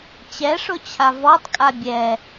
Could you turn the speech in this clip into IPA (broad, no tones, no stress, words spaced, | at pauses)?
t͡ɕɛʂʊt͡ɕʰa vɔtˤkʼa bʲɛ